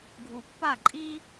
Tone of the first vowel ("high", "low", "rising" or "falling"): low